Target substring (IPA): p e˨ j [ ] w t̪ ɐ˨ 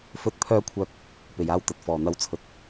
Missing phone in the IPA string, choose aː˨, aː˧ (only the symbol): aː˧